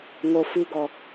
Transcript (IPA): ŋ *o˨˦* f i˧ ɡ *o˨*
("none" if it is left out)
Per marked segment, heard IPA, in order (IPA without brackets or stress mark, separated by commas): o˨, ɔ˨